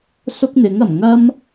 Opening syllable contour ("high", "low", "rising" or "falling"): high